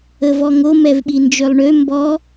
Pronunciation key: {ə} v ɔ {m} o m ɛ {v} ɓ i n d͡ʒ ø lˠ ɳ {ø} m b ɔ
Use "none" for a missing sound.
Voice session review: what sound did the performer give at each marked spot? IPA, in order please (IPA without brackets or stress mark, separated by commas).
ə, ŋ, v, ø